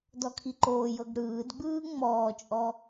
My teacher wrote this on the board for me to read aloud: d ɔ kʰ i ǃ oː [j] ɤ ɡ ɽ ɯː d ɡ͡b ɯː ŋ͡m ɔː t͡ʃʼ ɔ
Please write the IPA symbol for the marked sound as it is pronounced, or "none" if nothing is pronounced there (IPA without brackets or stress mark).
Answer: j